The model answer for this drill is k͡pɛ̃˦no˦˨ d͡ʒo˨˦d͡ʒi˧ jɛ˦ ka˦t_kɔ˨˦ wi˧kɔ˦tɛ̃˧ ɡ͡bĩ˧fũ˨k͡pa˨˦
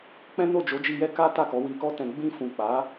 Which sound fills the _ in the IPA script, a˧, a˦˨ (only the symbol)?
a˦˨